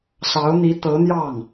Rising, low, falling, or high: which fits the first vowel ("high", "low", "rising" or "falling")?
rising